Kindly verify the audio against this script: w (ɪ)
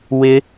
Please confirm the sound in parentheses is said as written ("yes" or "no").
yes